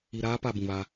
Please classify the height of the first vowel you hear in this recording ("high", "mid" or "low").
high